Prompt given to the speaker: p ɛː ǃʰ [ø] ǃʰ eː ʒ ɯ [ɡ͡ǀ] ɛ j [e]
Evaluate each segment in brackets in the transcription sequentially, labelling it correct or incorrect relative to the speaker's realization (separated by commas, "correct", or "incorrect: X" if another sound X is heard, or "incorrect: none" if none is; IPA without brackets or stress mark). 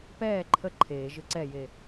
incorrect: ə, incorrect: ǀ, correct